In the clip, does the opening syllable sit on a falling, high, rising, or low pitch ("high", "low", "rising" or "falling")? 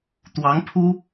rising